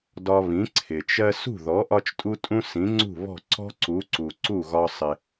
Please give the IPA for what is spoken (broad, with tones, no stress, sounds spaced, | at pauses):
d ɒ˧ β ĩ˩˥ ǀʰ ɪ˩ t͡ʃ ɜ˥ s ṳ˥˩ ð ɔ˩˥ ʔ ɒ˥ t͡ʃ tʼ u˥ tʼ ũ˥ s ĩ˩˥ ŋ͡ǀ ṳ˥˩ β ɔ̤˥˩ ǀ ɔ̤˥ ǀ u˩˥ ǀ u˩ ǀ u˥˩ ɣ ɒ˧ sˤ ɪ˩